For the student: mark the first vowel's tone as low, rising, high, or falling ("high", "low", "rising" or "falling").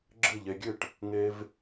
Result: falling